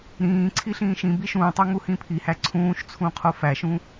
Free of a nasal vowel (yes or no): no